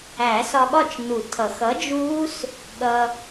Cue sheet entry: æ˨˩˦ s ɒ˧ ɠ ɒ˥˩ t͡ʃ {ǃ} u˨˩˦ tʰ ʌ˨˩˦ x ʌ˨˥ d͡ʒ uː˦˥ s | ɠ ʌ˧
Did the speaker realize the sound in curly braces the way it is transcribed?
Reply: no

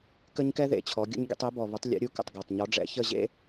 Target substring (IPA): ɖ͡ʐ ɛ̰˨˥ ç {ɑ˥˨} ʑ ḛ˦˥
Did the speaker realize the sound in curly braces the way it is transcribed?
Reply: no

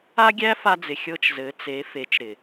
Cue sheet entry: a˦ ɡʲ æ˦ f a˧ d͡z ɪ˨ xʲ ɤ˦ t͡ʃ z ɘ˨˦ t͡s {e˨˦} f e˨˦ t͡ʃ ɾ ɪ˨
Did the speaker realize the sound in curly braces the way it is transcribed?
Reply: yes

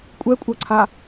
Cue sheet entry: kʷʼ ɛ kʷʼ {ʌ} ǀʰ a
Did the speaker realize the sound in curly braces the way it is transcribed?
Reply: yes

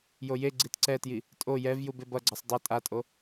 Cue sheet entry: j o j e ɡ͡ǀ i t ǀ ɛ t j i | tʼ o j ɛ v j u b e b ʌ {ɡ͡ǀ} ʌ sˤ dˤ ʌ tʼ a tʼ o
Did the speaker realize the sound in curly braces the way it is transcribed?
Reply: yes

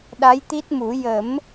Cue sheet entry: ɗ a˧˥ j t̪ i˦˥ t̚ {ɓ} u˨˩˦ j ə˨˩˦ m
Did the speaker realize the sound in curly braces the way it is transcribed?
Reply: no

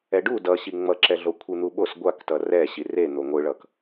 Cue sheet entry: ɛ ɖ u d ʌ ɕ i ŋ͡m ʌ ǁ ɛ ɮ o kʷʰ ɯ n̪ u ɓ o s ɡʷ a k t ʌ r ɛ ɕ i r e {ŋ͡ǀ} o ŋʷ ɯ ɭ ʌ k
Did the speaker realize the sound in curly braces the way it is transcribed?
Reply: no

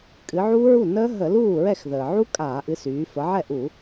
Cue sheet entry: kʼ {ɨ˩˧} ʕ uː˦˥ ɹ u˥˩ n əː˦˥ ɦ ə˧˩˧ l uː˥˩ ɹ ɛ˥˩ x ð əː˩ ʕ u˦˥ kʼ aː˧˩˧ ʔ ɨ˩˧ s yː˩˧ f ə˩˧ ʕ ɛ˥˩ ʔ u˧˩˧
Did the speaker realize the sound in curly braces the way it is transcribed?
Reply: yes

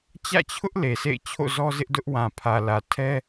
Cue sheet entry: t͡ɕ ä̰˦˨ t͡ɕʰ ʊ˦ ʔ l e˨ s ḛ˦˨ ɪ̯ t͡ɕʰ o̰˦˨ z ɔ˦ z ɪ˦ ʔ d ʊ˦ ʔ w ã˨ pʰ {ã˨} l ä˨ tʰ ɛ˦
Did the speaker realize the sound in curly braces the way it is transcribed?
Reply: no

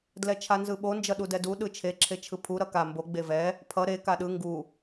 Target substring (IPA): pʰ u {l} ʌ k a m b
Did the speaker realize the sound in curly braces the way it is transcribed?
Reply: no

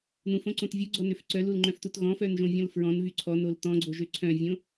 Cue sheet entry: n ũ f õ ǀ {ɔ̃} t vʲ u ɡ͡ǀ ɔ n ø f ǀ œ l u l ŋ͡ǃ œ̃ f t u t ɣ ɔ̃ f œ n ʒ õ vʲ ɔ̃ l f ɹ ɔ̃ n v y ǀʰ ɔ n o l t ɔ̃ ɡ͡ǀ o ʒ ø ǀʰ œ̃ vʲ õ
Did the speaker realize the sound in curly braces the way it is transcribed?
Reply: no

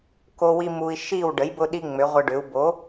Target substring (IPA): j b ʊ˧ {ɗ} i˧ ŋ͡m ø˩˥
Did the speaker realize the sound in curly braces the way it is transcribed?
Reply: yes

